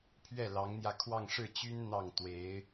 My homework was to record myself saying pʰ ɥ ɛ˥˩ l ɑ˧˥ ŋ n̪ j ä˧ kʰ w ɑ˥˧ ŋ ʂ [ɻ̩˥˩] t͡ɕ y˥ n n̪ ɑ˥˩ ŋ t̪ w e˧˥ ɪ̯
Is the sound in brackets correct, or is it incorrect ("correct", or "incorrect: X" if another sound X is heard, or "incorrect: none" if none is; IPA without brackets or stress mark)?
correct